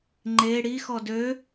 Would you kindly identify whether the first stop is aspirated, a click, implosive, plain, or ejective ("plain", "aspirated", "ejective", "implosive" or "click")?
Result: click